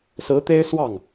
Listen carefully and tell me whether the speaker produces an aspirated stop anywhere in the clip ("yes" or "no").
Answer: no